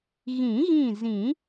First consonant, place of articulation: velar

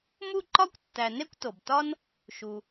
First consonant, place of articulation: labial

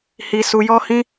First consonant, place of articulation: glottal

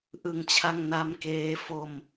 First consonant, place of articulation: glottal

